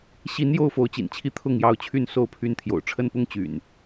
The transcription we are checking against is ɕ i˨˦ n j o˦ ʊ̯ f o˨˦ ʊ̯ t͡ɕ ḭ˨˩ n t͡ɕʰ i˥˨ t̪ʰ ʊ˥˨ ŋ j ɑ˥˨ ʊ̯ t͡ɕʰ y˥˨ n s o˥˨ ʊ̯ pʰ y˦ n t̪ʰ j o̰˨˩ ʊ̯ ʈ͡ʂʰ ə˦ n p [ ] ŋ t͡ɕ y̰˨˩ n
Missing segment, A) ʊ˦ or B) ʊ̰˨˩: A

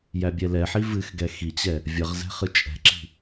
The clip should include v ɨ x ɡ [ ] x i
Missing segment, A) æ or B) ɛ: B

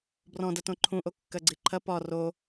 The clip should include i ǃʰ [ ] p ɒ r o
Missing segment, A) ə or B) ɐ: B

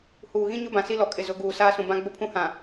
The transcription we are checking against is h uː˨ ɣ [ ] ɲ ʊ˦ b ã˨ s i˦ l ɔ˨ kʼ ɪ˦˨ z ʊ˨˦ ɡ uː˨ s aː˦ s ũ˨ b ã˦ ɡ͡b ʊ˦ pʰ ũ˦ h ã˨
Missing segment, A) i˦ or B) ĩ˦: B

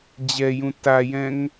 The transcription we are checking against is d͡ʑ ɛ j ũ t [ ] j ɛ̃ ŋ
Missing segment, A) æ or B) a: B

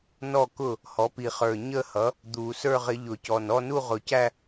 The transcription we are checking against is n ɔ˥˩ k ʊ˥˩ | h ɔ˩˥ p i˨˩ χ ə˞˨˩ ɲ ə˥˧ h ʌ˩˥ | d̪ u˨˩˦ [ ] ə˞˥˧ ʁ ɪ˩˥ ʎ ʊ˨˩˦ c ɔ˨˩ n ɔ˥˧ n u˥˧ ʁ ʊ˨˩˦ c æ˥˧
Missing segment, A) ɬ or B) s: B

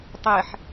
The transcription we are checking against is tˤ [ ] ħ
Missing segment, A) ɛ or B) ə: A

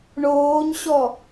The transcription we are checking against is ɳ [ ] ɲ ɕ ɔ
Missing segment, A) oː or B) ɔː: A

